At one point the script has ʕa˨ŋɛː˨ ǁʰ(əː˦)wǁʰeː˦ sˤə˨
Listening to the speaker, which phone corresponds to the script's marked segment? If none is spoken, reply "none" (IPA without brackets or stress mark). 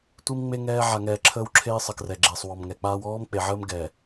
əː˦